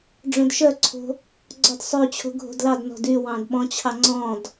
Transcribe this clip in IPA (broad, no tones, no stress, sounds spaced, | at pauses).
ɖ͡ʐ œ̃ d ʃ œ ǀʰ o̤ | ɡ͡ǀ ɔ d sˤ ø t͡ɕʰ o̤ ɡʱ o̤ d l ɑ d n ɔ̤ d y w ɑ̃ d ɓ ɔ̃ t͡ɕʰ ɑ ŋ͡ǀ ɔ̃ d